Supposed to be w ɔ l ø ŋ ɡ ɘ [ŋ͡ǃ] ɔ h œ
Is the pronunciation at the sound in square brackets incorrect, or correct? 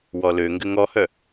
incorrect